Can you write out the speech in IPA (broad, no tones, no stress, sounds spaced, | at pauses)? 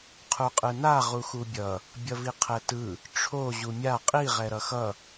qʰ u qʼ ɯ n a ʁ u x u bʲ ʌ | bʲ ʌ v i qʰ ɛ t ɯ | ʈ͡ʂʰ o ʑ u mʲ a qʼ i ʁ ɛ ɾ ʌ x ʌ